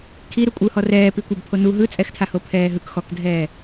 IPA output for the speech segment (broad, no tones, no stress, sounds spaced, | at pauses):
kʰ i ɾ u kʷʼ ɯ h ɔ r ɛː p i kʷ a b pʰ o n u ɦ ɯ t͡sʼ ɛ x tʰ a h o pʰ ɛː ɦ ɯ k x ɔ k dʱ ɛː